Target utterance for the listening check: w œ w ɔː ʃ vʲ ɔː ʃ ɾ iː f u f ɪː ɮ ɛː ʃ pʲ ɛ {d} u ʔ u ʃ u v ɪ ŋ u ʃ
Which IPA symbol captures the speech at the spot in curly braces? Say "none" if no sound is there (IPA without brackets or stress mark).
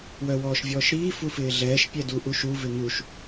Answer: d